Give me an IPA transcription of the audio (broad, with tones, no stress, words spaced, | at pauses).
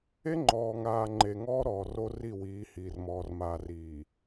e˦ ŋ͡ǃɔː˨ŋaː˨ ŋ͡ǃe˨ŋɔː˦ɾɔː˨ ro˦ri˦˨wiː˨˦hiː˨r mɔː˨rmaː˨ riː˨